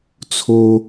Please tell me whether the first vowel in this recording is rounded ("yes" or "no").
yes